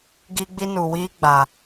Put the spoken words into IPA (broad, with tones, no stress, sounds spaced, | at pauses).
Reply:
ɡ i˦ ɡ͡b i˦ n u˨ w iː˦ ɡ͡b a˨